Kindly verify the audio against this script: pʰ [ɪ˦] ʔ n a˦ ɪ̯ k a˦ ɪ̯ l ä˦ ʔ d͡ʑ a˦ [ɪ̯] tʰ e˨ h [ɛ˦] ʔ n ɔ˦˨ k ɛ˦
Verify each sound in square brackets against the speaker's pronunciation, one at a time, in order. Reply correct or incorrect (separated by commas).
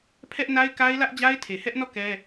incorrect, correct, correct